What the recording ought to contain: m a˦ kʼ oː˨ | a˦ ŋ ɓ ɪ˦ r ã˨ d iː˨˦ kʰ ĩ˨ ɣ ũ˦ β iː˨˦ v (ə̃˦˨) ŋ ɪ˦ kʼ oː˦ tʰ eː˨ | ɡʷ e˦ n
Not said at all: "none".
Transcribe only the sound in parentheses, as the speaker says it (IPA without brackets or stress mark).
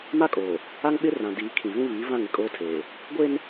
ã˦˨